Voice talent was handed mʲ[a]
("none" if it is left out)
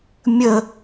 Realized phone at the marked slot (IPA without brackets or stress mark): ə